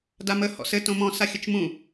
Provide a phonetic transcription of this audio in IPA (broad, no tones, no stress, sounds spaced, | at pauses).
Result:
d a m ə h ɔ̰ s ɘ t õ m ɔ̃ s a xʲ ə t͡ʃ m ũ